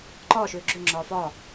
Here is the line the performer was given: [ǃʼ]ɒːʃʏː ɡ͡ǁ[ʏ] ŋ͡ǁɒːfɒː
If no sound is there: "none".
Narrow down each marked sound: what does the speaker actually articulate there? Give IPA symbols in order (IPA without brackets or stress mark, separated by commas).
ǃ, ʏ